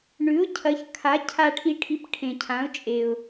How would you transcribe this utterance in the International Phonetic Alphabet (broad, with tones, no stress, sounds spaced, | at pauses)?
ɳ ʉ˧˥ ʊ̯ cʰ ɐ˧˥ ç kʰ a˧˥ cʰ a˧ ʈʰ i˧ ʈʰ i˧ p ʈʰ ẽ˧ cʰ ã˧˥ ʊ̯ t͡ʃʼ e˧ ʊ̯